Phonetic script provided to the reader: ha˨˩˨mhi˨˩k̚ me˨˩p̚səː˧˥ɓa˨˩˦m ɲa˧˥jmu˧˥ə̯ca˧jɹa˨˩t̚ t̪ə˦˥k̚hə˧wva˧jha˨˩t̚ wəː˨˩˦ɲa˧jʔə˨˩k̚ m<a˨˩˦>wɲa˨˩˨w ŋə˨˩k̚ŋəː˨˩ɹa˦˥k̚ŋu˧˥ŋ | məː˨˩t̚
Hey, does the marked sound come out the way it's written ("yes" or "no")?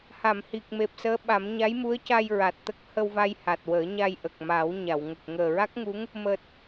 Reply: yes